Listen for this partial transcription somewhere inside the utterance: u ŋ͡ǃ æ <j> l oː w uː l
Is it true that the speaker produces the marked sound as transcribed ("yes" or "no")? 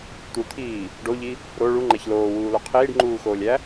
no